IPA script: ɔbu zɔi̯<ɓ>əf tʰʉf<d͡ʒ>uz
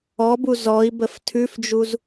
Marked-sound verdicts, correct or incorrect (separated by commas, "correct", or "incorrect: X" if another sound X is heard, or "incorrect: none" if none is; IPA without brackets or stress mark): incorrect: b, correct